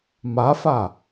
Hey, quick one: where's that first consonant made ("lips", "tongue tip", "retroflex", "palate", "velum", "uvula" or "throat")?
lips